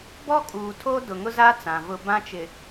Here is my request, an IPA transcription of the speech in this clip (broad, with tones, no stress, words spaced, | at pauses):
bɔ˦kʼuː˨tʰo˦ dʊ˨ŋʊ˦za˦ t͡sã˨vʊ˦ bã˦t͡ʃɪ˨